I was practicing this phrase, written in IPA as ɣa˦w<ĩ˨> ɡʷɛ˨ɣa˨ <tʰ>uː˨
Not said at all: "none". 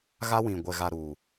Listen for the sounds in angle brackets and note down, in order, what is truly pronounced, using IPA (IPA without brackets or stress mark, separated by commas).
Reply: ĩ˨, ɾ